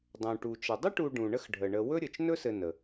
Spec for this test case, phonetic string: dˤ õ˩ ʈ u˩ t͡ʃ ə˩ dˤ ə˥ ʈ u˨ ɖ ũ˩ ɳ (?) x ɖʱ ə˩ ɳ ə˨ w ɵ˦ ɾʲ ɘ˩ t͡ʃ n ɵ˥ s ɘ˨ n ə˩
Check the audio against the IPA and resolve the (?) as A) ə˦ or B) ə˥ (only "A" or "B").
A